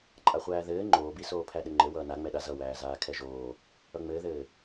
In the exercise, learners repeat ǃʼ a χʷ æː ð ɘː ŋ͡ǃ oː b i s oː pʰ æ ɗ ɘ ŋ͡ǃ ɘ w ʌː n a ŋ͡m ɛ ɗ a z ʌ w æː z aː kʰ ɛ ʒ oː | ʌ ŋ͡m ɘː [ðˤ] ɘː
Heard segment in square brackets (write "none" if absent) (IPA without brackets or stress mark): ð